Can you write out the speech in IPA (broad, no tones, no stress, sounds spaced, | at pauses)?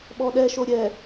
ɓ ɔ ɗ ɛ ʃ o ɾʲ ɛ